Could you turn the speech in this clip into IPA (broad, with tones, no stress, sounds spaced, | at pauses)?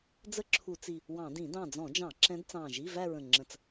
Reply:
d͡z ə˥˧ ǁʰ u˧˩˧ t͡s i˧˩ | w ɑ̃˧˩˧ d ĩ˧˩˧ d ɑ̃˧˩ d͡z ɔ̃˧˩˧ d͡ʒ ɑ̃˧˩˧ ǁ ɛ̃˧˥ d t͡s ɑ̃˧˩ ʒ i˧˥˧ v æ˥˧ ɹ ə̃˧˩ ŋ͡ǁ ə̃˧˩ t͡s